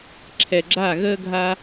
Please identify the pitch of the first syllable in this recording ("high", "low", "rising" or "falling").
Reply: low